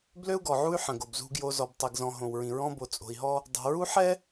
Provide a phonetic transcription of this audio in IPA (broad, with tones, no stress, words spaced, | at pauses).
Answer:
blø˦u̯ɡɔ˨ʕu˦y̯ ħə̃˨ɡo˨bzṳ˦ɡjo˦ zɔ˨btˤi˨ɡzɔ̃˨ ɦõ˨wɹĩ˨ɹɔ̃˦ bo˨t͡sʼo̤˨i̯ɦɔ˦ | dˤo̤˨ɹu˦ħɛ˦